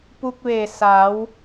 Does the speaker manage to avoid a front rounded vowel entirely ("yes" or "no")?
yes